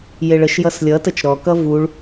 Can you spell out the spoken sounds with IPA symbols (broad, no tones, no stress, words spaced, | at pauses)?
jeɭəʃjʌs lʲʌtət͡ʃ ɾɔkʌ vuɭ